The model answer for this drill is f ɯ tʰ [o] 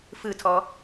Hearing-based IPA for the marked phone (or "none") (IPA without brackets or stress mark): ɔ